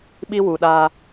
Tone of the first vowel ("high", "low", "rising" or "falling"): high